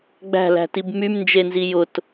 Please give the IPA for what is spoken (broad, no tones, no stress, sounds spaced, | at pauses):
ɡ͡b æ̤ l æ̤ t i b m y m n d͡ʒ e n z i j ʊ t